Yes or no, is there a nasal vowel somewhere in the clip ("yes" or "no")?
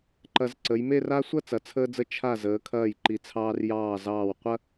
no